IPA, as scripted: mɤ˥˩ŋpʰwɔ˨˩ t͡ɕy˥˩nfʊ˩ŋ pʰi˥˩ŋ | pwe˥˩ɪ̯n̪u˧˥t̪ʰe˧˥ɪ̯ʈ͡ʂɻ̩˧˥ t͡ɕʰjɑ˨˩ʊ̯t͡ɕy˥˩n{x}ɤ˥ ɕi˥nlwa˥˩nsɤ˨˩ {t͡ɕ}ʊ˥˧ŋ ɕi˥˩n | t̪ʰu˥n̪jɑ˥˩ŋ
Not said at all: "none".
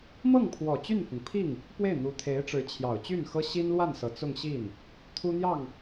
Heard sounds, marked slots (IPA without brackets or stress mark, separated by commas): x, t͡s